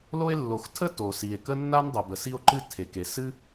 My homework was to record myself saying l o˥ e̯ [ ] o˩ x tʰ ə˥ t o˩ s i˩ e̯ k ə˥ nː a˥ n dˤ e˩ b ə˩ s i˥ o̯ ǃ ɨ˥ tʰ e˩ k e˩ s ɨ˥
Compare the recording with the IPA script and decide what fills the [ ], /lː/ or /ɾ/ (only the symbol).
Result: lː